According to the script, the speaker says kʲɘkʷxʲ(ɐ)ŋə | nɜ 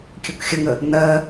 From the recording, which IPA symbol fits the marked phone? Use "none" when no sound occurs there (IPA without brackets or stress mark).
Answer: ə